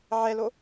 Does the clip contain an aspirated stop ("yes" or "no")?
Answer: no